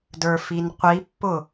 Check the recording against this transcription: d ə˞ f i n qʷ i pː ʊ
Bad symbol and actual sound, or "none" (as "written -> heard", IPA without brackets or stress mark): none